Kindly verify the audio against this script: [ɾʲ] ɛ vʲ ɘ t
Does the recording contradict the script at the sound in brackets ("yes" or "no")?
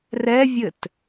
yes